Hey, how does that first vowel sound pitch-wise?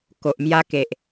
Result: low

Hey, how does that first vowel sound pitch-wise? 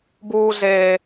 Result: low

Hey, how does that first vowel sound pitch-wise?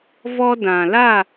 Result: high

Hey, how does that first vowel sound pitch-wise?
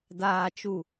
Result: low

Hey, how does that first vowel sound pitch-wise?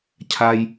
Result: low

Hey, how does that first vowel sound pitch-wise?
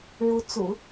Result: rising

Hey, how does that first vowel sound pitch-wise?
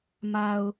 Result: low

